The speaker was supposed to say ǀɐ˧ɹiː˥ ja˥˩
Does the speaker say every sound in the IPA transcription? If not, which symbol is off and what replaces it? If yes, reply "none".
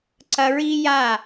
none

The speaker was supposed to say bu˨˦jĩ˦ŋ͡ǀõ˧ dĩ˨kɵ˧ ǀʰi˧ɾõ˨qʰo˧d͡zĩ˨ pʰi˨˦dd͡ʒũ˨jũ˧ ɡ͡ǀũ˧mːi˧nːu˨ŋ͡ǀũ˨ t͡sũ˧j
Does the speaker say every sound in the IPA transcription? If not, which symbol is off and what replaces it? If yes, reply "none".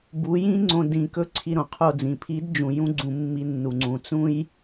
none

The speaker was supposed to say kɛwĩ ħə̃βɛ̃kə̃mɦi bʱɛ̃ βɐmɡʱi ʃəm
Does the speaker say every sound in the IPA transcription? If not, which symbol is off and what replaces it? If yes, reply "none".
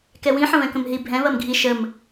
none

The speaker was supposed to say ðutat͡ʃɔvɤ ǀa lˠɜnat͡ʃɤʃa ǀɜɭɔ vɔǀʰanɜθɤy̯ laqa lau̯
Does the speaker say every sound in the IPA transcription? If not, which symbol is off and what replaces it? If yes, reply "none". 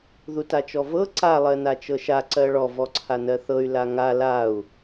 q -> ŋ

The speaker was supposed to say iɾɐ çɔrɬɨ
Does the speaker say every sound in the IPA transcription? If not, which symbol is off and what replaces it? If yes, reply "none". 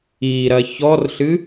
none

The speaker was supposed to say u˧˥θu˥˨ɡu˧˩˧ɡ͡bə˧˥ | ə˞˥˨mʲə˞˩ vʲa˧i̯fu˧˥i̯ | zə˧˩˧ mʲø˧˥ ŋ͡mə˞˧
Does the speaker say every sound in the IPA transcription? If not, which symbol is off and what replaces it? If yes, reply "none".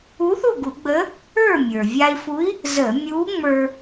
ø˧˥ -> u˧˥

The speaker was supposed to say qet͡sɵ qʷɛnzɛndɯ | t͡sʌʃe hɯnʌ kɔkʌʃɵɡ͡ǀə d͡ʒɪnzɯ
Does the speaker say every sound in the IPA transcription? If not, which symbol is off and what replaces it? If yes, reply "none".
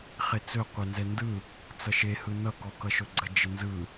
q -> χ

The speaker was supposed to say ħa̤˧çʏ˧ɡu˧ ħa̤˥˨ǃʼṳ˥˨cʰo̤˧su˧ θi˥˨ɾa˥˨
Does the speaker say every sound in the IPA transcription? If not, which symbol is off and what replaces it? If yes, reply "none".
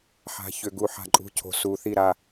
none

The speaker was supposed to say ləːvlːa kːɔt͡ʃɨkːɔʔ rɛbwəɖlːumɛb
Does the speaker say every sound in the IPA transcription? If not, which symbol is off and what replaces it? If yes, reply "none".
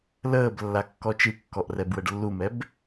v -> b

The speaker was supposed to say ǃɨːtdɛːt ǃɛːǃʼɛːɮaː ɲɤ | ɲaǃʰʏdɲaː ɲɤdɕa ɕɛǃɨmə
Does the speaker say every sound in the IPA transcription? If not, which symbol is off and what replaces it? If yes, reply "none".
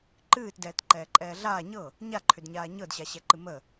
none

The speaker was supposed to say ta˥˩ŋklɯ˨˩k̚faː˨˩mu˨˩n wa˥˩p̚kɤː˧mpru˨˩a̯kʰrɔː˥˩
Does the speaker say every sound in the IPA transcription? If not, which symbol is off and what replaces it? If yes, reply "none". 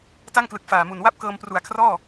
none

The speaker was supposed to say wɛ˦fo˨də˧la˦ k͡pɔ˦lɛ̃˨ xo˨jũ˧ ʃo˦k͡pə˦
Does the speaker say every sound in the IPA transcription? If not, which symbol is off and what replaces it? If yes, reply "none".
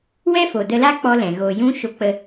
x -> ɣ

